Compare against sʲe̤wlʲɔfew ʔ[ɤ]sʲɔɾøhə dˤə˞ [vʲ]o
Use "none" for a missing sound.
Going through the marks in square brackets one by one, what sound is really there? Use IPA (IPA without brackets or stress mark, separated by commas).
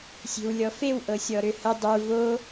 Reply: ɤ, v